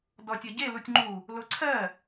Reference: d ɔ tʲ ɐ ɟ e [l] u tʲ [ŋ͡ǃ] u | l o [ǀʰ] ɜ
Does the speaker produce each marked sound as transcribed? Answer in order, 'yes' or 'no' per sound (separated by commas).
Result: yes, yes, yes